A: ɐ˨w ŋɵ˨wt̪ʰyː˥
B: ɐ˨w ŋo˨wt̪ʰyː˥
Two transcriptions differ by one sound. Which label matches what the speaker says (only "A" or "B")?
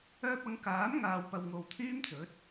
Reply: B